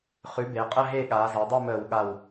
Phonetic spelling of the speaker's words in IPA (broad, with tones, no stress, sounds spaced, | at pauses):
χ ʉ˩˥ b e˩˧ qʼ ə˥˨ ɦ e˥˨ ɠ aː˩˧ z a˩˧ dˤ e˥˨ m əː˧˩˧ w ɠ a˧˩ w